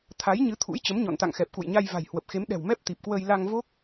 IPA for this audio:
t̪ʰa˨˦jɲɨ˨˦ t̪ʰṵ˧˥jt͡ɕə˨˦mɲɔ̰˧˨nt̪a̰˧˨ŋ xɛ˨˩p̚kṵ˧˨jɲa˧j va̤˨˩jhwə˨˩p̚xe˨˦m ɗɛ̤˨˩w mɛ˦˥p̚t̪i˨˩p̚kwəː˧j la˧ŋ vo˦˥k̚

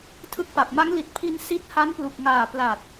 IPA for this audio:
tʰɯ˦˥k̚pa˨˩p̚ ma˦˥ŋli˨˩t̚pʰi˧n si˦˥t̚ ha˦˥nplu˨˩k̚ŋaː˨˩ pla˨˩t̚

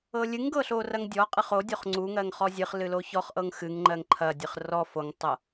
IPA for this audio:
ɤlʲɨŋɡɤ ɬorɐŋdʲɔqʼɨχ o dʲoχŋ͡ǀuŋɜŋ χɔzʲɨχlɨ loçɔχʔɤŋ xɨŋ ŋ͡ǃɜŋǃʰɐdʲɨχ rɔ foŋtˤɤ

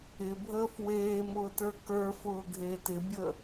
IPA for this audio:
ɪbʱəːf weːmʊːtə˞ kə˞fʊːɡʱeːt ɪbʲə

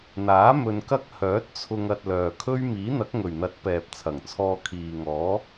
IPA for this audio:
n̪aː˨˥ mɵ˧nkɐ˥k̚ hœː˨˥t̚t͡sʰʊ˧ŋ ɐ˧t̚lœː˨kʰɵ˥ɥ miː˨˥n̪ɐ˨˥k̚ŋɵ˨˩ɥn̪ɐ˨˥t̚ pɛː˨p̚t͡sʰɐ˨˩ŋt͡sʰɔː˧ kʰiː˨ŋɔː˨˥

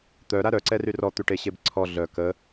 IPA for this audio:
t̪œɾa ɾœǀɛry rɔt̪yʈeɕeb ǀʰɔ ɮœ kə

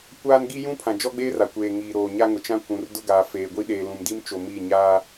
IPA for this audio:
kʷaː˦n ɡi˦jũ˦pʰã˨ d͡ʒɔ˦ɡ͡beː˦ra˨kʷeː˨ ŋiː˨ɾoː˨ ɲa˦ŋʊ˨ t͡ʃã˦ kʷũ˨r dʊ˦ɡaː˨ feː˨ɡʷi˦ ɗeː˨lũ˨mdi˦m t͡ʃo˨mi˦˨ ɲaː˦

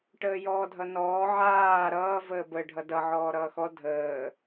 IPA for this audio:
ʈəːjɔːdʱʌnɔː ʕaː ɾʌː vəːbə ɖʱʌdʌ ʕɔːɾʌːxɔ dʱəː

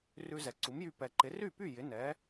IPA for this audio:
rʉ˧zɛ˩ ǀu˩˥mjy˧ pɛ˩ǃɪ˩˥ ry˥˩py˥˩ jɪ˩˥ nɛ˩˥

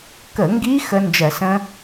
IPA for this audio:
kə˧˩˧ŋɡi˦˥ xə˦˥nd͡ʒɜ˧˩˧sə̃˦˥

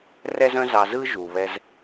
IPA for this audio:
rɛ˥zœ̃˥zɑ˧zɯ˥ ʒu˩βɛ˧z

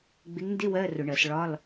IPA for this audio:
ɡ͡bɪ˨˦ŋndɪ˧˥˧ wɜ˧˥˧ rʊ˧˩˧ɳɜ˧˩˧s ɭɒ˧˥˧l

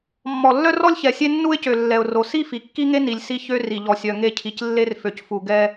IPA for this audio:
mːɔ˨lːœ˦rɔ˦lʲçɛ˨ sʲe˦nːu˦ɪ̯cø˨ lːɛ˨ʊ̯ro˨ si˦fi˨kːi˦ŋe˦ ni˨lʲ si˦ çø˦ ri˨ʎɔ˨ sʲœ˨ŋe˦˨cʰi˨c lːe˦rfø˨cfu˨ɡɛ˦

